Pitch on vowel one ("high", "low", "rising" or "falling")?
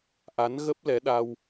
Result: rising